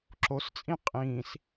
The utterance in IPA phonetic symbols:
ǁ o s t͡sʼ ĩ qʼ ĩː s

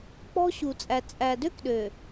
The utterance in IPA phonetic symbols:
k͡p ɔ̤˦ ɕ u˨ t͡sʼ æ˨ t͡sʼ æ˨ d ø˦ k ɗ ø˨

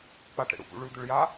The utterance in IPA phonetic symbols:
k͡p a ʈ ɾ ḛ ɽ ṵ p ṵ ɭ ʉ d̪ ʏ ɭ j a

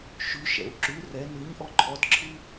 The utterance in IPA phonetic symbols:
ʃ ʉ ʃ ɛ̰ u̯ ǁ ʉ r ɛ n ɨ ɲ ʔ ɔ ǃʰ ɔ d ǁʰ ɨ

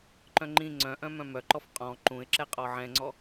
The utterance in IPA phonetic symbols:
ǃ œ̃ ŋ͡ǃ ĩ ŋ͡ǀ œ̃ ʔ œ̃ m œ̃ m œ ǃ ɔ f qʼ ɔ̃ ǃ ũ ɪ̯ ǁ ɛ qʼ ɔ ʕ ɛ̃ ŋ͡ǀ ɔ

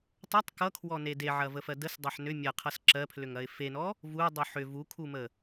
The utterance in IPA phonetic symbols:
tˤ ʌ tˤ k ʌ kʰ w ɔ n e d e ʕ ɐ v ə f ɜ d ə s dˤ ɐ ħ n ʏ mʲ ɐ qʰ ʌ s ǁ ɜ pʰ l ʏ ŋ ɐ ɪ̯ f e n ɔ | v u dˤ u ħ ʏ v u kʰ u m ə

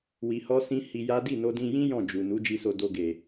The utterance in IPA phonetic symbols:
w i˧ h ɔ˦ s ĩ˦ h i˧ j a˦ d i˦˨ n o˧ d ĩ˧ j ĩ˦ j ɔ̃˦˨ d͡ʒ u˨ n u˨˦ d͡ʒ i˧ s o˧ d o˧ ɡ e˨

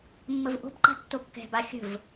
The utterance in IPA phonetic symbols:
mː ə v ʔ o̤ b ǃ a̤ tː o kː ɛ̤ b a xʲ ə̤ v

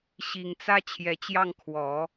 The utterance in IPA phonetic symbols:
ɕ i˨˩ ŋ t͡s ä˥ t͡ɕʰ j ɛ˨˩ t͡ɕ j ɑ˥˩ ŋ kʰ w ɔ˨˩˦

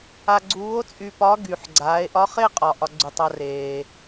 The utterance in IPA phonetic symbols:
a˧ ɡ͡ǀ uː˧˥ o̯ t͡sʼ y˧ p ɒ˧˥ ɡ y˩ ħ ɡ͡ǀ aː˩˧ e̯ ʔ ɒ˧˥ χ e˥ qʼ ɒ˩ ʔ ɒ˧ ɡ͡ǀ u˩ tˤ a˧ r eː˩

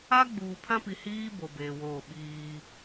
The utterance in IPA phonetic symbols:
a˦ ɡ͡b uː˨ pʰ ã˦ p i˨ h iː˦ b o˨ b eː˨ w oː˦˨ ɓ iː˦

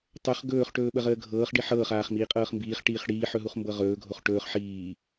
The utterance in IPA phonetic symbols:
tˤ ɵ χ ɡ ɵː χ ʈ ɵː ɓ ə ʁ əː ɡʱ ɤː χ ɖ i ħ ɤː χ aː χ m iː qʼ ɤː χ m b iː χ ʈ iː χ ɽ iː ħ ɵ ɦ u χ m b ɤ ʁ ɵː ɡʱ o χ ʈ ɵː χ ħ iː

